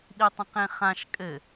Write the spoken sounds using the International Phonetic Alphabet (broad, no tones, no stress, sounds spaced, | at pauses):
ɗ i tˤ ə̃ q ẽ χ ã ʃ kʼ ɘ